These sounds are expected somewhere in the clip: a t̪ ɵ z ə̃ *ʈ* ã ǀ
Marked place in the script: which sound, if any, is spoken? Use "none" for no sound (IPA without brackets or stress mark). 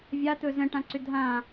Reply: ʈ